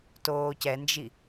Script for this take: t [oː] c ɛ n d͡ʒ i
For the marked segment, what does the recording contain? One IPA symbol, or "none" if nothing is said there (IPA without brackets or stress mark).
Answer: oː